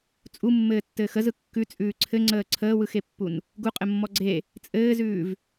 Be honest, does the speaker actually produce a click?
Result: yes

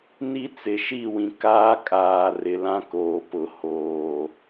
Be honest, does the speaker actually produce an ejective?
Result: yes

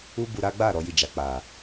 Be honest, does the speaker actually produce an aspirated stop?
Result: no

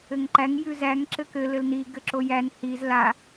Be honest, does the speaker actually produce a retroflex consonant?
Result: no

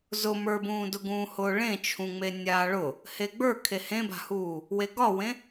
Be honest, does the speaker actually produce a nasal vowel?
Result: yes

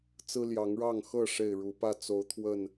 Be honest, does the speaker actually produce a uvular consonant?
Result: no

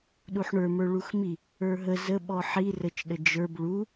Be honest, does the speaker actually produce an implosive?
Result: yes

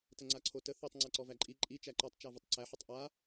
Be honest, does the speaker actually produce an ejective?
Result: yes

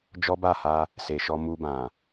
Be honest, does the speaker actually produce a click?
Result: no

